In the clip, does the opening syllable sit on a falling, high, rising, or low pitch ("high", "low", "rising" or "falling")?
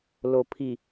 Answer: low